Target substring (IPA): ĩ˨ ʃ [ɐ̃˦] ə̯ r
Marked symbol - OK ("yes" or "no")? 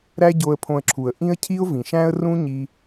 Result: no